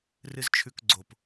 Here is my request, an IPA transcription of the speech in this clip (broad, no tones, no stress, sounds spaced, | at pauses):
r ɨ z t͡ʃʰ ʉ k ɡ͡ǀ o p